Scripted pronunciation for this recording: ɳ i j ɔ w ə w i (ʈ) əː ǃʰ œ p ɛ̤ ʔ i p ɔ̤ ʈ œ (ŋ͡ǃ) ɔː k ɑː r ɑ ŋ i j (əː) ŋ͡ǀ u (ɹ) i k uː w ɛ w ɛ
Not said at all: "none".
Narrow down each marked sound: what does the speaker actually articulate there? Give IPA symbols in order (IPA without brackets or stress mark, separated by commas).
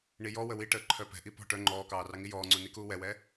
ʈ, ŋ͡ǃ, ɔː, n